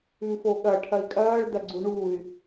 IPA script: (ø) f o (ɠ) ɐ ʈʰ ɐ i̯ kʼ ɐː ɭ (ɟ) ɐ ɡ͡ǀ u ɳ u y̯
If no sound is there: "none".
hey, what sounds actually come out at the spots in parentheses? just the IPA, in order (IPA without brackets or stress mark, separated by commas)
ʉ, ɠ, d